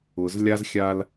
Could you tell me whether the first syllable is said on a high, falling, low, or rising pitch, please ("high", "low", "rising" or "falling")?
low